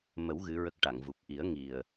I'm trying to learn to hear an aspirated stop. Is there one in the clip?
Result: no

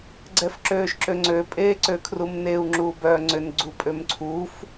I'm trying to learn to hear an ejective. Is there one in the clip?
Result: yes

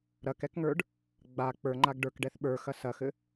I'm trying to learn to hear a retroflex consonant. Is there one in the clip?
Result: yes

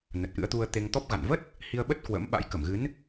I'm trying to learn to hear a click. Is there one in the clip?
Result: no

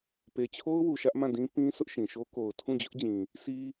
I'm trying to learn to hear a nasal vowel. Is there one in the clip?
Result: yes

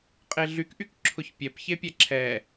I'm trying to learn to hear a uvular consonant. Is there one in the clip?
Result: yes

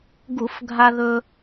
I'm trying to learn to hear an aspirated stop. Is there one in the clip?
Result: no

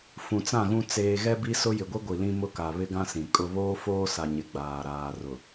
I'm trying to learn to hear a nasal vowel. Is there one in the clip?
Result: yes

